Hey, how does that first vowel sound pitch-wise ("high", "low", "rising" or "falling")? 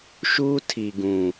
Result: high